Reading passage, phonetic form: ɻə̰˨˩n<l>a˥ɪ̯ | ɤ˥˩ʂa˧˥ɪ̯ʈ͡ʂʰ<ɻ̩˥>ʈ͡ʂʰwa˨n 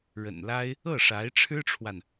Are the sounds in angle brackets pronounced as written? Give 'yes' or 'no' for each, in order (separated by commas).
yes, yes